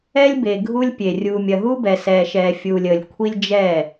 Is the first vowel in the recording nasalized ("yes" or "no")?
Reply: no